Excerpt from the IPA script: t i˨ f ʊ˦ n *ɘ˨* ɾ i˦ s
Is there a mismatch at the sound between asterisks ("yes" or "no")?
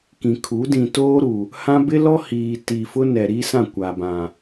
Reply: yes